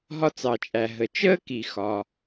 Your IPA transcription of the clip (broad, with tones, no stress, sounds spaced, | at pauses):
ɦ ɒ˥ t͡s ɑ˩ t͡ʃʼ æ˩ ɦ ə˩ t͡ʃ əː˥ k i˩ x ɒː˩